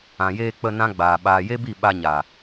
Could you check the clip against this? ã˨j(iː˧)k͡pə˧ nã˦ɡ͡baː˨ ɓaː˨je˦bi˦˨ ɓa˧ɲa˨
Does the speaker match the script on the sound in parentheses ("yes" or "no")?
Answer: no